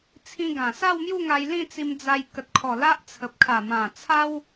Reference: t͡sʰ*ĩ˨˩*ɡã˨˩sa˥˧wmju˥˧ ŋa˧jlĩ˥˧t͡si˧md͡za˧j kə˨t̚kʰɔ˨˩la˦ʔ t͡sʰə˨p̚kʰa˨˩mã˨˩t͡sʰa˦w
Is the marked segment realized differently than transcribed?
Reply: yes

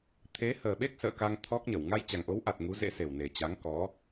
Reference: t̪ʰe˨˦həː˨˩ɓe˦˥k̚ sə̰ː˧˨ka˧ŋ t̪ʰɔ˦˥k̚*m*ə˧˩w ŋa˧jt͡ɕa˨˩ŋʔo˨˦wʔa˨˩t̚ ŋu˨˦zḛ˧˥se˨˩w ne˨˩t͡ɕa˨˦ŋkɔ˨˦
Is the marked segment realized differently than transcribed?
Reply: yes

